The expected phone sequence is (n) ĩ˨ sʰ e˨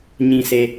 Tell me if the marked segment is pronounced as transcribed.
no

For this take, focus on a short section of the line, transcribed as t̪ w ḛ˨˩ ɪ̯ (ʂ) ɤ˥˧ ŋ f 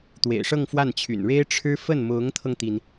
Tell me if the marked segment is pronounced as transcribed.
yes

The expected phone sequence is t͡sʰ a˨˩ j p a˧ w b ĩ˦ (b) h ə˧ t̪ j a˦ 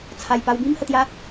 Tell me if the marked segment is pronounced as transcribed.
no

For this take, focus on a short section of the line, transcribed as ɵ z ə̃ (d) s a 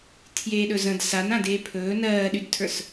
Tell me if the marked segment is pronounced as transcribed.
yes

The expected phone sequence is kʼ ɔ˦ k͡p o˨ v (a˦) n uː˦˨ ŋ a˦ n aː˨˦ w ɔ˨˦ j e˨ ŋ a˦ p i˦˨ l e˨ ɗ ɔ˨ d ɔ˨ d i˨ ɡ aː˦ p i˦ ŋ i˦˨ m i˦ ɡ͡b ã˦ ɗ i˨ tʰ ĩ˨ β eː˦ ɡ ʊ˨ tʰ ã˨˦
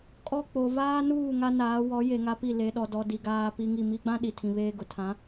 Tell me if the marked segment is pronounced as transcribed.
no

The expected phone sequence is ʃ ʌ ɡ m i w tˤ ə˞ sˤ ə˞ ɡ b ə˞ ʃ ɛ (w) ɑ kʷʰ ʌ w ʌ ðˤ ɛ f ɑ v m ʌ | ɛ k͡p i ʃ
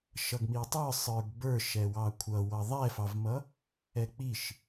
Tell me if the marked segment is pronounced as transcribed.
yes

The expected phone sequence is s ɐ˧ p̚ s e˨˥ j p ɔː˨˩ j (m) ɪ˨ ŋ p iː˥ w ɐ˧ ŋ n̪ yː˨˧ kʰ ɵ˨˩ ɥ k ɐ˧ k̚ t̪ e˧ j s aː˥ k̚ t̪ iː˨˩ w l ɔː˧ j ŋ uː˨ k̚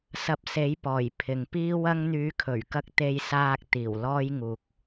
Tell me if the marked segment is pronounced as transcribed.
no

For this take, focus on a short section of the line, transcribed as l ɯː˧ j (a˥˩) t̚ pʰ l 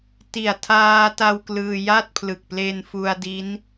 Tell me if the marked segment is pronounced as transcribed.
yes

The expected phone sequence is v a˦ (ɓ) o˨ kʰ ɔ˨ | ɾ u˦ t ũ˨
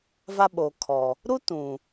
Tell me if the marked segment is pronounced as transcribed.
yes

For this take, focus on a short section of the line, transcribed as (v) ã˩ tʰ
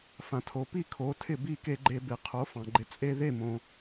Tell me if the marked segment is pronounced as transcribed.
no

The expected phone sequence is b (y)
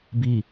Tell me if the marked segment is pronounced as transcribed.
no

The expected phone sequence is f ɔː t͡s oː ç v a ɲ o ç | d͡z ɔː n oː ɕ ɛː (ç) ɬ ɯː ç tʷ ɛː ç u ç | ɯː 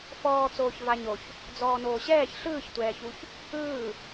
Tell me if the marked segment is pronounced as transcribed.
yes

